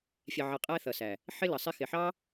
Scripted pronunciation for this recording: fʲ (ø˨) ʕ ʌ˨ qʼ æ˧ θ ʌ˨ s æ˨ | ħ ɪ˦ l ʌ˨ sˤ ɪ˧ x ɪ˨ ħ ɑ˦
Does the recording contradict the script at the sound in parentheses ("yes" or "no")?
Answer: yes